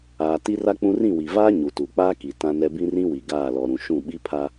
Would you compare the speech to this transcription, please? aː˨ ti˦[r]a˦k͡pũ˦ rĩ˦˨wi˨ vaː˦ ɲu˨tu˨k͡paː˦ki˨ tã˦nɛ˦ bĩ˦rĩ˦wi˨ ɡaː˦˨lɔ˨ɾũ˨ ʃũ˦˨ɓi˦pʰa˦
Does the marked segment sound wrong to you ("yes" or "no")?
no